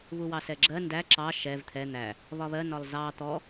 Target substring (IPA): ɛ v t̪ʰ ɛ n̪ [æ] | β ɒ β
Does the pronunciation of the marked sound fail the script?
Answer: no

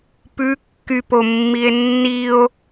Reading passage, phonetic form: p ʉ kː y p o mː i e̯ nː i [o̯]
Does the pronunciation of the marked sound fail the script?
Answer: no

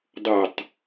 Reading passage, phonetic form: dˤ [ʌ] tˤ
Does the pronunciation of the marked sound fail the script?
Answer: no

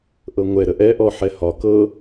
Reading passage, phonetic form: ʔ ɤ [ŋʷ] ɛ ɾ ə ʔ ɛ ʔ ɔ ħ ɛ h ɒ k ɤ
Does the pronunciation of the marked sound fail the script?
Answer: no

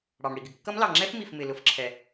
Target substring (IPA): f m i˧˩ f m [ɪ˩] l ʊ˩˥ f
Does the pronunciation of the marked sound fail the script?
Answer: no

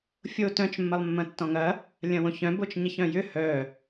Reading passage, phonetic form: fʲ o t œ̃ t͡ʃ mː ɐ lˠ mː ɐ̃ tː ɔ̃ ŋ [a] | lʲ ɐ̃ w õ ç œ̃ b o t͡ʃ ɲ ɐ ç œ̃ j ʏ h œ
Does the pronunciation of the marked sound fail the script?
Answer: yes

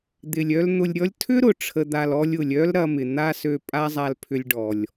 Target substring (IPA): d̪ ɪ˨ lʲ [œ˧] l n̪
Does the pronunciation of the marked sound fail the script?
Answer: no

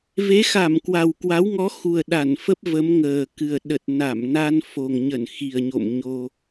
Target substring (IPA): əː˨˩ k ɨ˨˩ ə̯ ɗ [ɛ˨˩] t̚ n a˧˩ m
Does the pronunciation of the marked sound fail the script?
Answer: yes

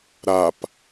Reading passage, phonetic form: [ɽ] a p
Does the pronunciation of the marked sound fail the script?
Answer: yes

